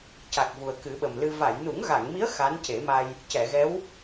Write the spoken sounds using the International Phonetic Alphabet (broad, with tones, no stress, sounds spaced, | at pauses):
c a˨˩ k̚ v u˨˩ ə̯ k ɨ˨˩˦ ɓ ə˨˩ m l ɨ˧ v a˨˩˨ j n u˨˩˦ ŋ ɣ a˨˩˨ ŋ m i˧˥ ə̯ x a˧˥ n c e˨˩˦ m a˧ j | c ɛ˨˩˨ ɣ ɛ˧˥ w